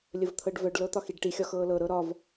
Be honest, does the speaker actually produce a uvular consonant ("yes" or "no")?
no